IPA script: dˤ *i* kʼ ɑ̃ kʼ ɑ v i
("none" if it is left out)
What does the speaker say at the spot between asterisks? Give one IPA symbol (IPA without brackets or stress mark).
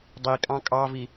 i